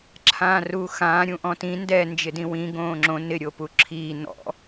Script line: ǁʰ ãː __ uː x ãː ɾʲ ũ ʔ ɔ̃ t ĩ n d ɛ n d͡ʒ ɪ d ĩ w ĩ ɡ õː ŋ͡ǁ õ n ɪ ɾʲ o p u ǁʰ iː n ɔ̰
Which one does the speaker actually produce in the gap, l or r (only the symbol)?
r